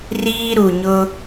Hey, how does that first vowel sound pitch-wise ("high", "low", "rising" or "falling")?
high